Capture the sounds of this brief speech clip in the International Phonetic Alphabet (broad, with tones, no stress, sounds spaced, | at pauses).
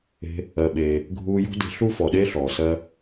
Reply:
e̤˧ | ɜ˩ ɓ eː˩ | ɡʱ uː˧ j ɔ̤˥ d e̤˧ ɬ u˥ f ɔ˩ ɗ e˥ ɬ ɔː˩ s ɜ˧